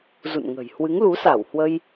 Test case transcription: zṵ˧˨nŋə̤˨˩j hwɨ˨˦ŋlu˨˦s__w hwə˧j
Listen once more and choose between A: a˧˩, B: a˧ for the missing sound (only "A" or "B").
A